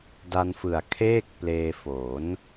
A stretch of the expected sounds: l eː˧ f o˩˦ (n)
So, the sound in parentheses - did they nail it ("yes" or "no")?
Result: yes